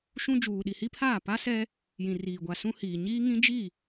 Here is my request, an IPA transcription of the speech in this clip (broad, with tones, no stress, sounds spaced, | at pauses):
ʃ ũ˦ d͡ʒ uː˨ ɗ i˨ h i˦ pʰ aː˦˨ p a˦ s ɛ˦ | j ĩ˨ r iː˨ ɡʷ a˨ s ũ˦ h iː˨ ɲ iː˦ ŋ ĩ˦ d͡ʒ i˦˨